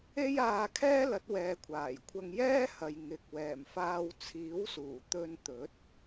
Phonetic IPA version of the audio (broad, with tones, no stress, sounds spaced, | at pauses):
e˥ j aː˧ kʰ ɛː˥ l ɐ˨˥ t̚ w ɛː˨˧ kʷʰ aː˨˩ j kʷʰ ɐ˧ ŋ j ɛː˥ h ɐ˨ j ŋ ɪ˨ k̚ w ɛː˨˩ m f aː˧ w t͡sʰ iː˨˥ w s uː˨˩ t̪ ɵ˧ n t̪ ɵ˨˥ t̚